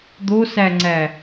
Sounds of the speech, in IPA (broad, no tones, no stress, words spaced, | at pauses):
d̪osæŋ͡ǀæ